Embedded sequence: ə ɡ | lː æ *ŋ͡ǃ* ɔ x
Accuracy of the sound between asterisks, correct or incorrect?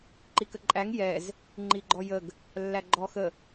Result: incorrect